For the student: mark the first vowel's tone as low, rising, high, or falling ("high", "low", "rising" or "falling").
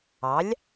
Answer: rising